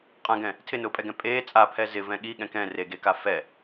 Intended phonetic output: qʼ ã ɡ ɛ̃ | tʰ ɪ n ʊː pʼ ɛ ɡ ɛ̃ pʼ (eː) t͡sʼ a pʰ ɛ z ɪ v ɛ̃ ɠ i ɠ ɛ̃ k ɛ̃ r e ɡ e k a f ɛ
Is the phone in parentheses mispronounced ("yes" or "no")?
no